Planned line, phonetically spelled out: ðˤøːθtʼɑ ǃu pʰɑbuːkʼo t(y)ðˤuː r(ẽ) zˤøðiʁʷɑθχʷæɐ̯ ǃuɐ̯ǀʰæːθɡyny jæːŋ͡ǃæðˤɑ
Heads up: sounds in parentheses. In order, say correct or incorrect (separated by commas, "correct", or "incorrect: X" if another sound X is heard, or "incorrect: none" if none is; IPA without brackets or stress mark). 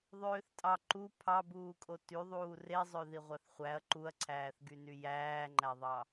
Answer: correct, incorrect: e